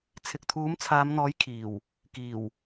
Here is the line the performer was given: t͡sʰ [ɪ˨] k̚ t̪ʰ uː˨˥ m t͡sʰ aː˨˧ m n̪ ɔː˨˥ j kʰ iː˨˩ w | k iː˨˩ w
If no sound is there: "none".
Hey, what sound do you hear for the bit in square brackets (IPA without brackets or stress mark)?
ɪ˨